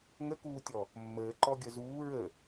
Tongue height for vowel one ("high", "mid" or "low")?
mid